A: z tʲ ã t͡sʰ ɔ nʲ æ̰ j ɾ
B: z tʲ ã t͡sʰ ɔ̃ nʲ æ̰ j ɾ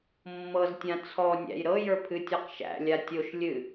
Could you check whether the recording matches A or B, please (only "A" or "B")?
A